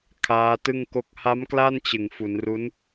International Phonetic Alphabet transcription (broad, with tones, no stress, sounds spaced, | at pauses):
kʰ aː˦˥ t ɯ˥˩ ŋ k o˥˩ k̚ h a˦˥ m k l a˥˩ n t͡ɕ ɯ˨˩ ŋ f u˩˦ n r u˦˥ n